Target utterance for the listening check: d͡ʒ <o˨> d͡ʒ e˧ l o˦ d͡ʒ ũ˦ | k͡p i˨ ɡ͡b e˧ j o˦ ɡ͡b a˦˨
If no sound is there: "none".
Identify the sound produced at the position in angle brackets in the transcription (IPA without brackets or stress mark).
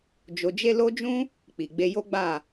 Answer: o˨